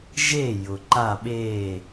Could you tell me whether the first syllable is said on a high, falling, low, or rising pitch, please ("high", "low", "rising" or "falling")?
falling